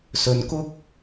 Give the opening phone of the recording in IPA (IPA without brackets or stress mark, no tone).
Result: s